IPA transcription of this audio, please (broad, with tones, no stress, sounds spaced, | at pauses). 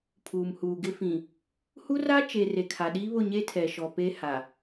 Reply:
pʰ uː˨ m h uː˨ ɡ ɪ˦ f ĩ˨ | h u˦ r a˦ t͡ʃ e˨ r e˨ kʰ a˨ ɗ iː˦ β ʊ˦˨ ɲ e˦ tʰ ɛ˨ ʃ ɔ˨ p e˦ h a˨